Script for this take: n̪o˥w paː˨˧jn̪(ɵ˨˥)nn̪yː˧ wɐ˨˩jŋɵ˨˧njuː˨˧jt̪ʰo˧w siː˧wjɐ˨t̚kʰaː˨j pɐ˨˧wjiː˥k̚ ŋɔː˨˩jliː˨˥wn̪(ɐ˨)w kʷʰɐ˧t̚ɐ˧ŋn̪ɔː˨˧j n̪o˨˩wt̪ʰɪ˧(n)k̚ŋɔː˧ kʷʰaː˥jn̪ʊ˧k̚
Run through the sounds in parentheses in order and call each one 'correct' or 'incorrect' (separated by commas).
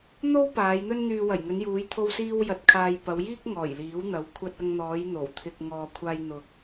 incorrect, incorrect, incorrect